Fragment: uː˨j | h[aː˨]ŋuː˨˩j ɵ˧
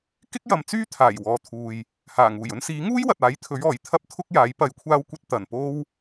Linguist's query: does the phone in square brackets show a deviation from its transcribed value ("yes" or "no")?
yes